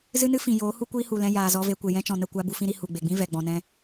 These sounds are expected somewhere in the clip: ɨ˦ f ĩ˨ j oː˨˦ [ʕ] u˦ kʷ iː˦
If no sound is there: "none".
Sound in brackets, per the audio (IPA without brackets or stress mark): h